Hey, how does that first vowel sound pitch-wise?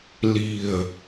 low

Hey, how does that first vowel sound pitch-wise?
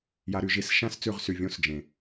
high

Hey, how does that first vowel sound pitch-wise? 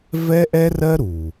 high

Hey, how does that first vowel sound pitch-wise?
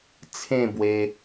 falling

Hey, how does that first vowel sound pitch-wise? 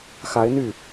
rising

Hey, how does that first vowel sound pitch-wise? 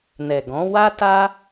low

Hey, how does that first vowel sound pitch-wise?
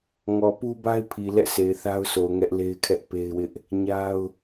low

